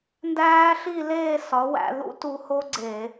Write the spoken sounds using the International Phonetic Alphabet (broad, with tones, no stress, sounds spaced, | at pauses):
n d æː˦˥ ɬ i˥˧ l eː˥˧ s ɒ˨˥ w æ̰˧ ð ṵ˦˥ t u˧ h o˦˥ ɡ͡ǀ e˧˩˧